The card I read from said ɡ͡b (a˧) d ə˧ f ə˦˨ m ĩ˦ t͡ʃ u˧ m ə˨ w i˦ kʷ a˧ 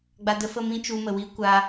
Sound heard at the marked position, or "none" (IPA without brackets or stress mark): a˧